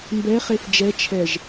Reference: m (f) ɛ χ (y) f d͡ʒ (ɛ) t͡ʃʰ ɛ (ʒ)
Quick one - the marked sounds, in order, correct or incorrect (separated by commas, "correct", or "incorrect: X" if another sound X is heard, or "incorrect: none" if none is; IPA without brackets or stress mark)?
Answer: incorrect: b, incorrect: e, correct, correct